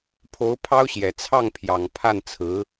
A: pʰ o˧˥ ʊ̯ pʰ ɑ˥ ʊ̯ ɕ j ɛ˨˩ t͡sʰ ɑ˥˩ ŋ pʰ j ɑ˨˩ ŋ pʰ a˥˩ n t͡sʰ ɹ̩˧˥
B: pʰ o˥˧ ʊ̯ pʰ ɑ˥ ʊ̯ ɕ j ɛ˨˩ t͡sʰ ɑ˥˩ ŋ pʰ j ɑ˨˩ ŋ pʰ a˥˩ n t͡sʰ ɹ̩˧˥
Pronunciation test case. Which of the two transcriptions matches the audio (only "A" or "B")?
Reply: A